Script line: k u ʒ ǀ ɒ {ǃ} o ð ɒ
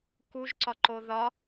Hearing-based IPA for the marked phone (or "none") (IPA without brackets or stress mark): ǃ